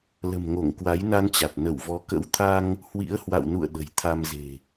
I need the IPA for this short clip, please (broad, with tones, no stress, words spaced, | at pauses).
lə̤˨˩mŋo˧˩ŋ kwa˨˦jna˧nt͡ɕa˨˩t̚ nə˧˩wvɔ˨˦ kə̰˧˥wt̪ʰa˧ŋ | hwḭ˧˥ə̯hwa̰˧˨wnṵ˧˨ə̯ ɗə̤˨˩jt̪ʰa˧mze̤˨˩